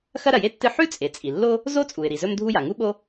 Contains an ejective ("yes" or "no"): yes